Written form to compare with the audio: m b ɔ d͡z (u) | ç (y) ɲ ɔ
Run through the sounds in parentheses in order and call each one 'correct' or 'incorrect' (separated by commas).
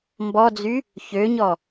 incorrect, incorrect